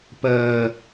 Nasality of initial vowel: oral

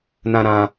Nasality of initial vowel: nasal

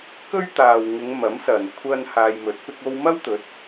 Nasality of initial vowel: oral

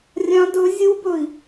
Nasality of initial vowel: nasal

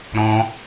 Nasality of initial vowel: nasal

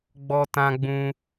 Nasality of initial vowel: oral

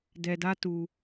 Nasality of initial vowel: oral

